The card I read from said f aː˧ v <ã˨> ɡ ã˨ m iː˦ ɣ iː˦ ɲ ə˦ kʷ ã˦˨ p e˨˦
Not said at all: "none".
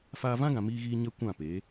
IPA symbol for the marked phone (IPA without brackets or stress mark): ã˦